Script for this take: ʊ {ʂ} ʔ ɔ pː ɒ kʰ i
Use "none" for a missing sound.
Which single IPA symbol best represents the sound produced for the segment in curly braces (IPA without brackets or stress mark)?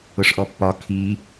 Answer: ʂ